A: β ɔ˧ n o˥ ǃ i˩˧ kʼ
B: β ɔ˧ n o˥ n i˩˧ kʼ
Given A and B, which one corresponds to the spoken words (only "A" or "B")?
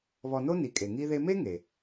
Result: B